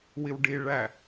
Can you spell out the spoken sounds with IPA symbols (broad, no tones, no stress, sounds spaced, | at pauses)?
w i w ɖ i ɭ æ